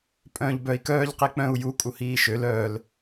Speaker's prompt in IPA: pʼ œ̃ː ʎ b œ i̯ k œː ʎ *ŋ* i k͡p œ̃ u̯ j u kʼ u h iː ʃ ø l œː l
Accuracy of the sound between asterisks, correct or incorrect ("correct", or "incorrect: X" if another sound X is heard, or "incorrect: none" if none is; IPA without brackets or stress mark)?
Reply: incorrect: q